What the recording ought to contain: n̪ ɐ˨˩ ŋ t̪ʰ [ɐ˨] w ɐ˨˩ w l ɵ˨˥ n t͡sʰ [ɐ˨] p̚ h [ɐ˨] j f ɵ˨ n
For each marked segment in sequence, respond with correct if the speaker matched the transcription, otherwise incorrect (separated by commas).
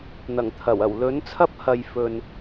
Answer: incorrect, incorrect, correct